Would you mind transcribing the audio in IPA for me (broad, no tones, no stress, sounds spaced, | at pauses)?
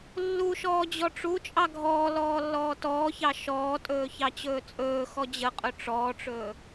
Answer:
lː u ʃ ɔː d͡ʑ ɔ ʈ͡ʂ u t͡ʃʼ ɑ ɡʱ ɔː l ɔː lː ɔː t ɔː ç ɑ ʃ ɔː tʼ ɵː ç ɑ t͡ɕ ɵː t͡sʼ ɵː x ɔ d͡ʑ ə qʼ ɵ ʈ͡ʂ ɔː ʈ͡ʂ ɵː